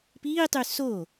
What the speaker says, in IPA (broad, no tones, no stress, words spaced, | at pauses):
piːtˤy so